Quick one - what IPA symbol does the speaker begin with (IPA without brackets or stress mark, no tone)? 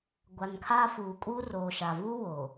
ɡʷ